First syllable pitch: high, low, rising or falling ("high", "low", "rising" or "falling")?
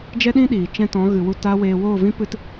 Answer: high